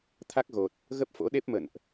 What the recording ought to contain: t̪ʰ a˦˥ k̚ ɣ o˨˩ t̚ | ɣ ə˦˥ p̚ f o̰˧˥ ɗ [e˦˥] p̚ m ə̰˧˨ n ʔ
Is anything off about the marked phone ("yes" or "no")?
no